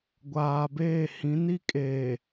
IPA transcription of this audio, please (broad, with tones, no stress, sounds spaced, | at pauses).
ɡʷ aː˨ b eː˦˨ h ĩ˨˦ n i˦ kʼ eː˨